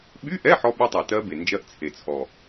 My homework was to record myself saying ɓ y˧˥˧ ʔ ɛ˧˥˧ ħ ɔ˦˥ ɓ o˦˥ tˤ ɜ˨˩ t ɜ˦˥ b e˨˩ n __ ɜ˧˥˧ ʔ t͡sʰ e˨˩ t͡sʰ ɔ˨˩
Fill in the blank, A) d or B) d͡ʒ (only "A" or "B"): B